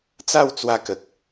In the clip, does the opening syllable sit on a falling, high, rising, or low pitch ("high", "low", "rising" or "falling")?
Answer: falling